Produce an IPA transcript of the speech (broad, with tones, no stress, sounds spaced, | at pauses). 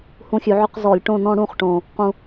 h ũ˧ xʲ ʉ˩˧ ʕ ʏ˥˧ q z ɔ˧˩˧ lʲ ʈ õ˥˧ n ɔ̃˥˧ ɽ ũ˥˧ χ ʈ õ˨˩ | q ũ˧